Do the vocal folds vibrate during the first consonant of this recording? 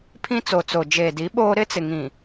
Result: no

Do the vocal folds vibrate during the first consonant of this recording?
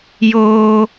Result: yes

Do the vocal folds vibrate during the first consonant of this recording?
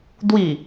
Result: yes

